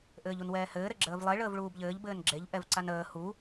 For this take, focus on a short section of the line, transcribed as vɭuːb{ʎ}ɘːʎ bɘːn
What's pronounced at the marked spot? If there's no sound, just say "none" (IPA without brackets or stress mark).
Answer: ʎ